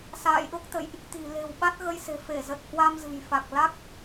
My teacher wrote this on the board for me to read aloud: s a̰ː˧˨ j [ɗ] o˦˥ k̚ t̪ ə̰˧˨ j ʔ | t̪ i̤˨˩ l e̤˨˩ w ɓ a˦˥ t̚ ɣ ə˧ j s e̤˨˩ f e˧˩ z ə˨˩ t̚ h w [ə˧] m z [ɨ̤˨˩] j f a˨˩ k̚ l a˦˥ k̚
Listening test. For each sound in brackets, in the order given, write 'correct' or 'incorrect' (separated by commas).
correct, incorrect, correct